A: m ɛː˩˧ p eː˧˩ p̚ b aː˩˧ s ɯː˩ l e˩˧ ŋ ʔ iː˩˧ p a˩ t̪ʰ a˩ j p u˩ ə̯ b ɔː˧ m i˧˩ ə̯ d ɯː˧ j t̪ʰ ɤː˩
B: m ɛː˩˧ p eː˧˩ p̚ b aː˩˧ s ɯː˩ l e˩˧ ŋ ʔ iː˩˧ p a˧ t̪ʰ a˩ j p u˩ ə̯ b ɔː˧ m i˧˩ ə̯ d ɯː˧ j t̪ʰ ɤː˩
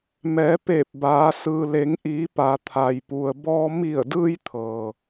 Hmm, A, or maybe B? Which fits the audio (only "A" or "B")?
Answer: A